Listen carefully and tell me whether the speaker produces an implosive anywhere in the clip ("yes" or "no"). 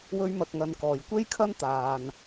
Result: no